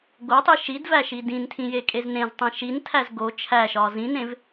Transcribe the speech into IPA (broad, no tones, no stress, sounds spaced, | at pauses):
ɡ o tˤ i ʃ i d v æ ʃ i d ĩ n tʰ ĩ j e kʼ e z n ẽ z tˤ ĩ ʃ i n tʰ æ z ɡ o t͡ʃʰ æ ʃ ɒ z ĩ n ẽ v